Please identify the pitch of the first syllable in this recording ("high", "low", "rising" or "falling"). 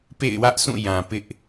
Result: falling